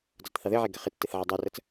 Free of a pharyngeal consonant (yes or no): no